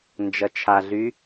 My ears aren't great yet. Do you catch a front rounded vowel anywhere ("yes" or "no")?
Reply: yes